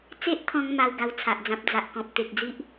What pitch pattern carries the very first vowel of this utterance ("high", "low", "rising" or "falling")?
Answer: high